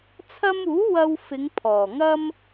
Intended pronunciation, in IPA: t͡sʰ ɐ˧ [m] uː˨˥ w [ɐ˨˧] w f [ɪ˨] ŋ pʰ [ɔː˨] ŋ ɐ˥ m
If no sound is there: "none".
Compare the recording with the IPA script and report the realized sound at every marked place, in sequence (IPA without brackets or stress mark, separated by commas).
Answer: m, ɐ˧, ɪ˨˧, ɔː˨˩